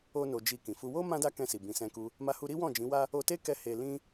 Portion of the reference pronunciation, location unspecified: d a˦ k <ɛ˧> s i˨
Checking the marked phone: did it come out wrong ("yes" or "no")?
yes